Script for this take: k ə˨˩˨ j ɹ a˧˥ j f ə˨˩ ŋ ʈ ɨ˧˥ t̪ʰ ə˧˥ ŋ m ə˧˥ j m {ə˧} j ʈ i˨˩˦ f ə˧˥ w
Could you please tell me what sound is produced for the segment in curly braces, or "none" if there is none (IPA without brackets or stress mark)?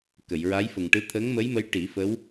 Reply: ə˧˥